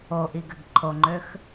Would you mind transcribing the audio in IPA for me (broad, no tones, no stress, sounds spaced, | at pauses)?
o ʔ i ɡ ɘ ɡ ǃʰ o ŋ͡ǃ ø x